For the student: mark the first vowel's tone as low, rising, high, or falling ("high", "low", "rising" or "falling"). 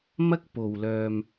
high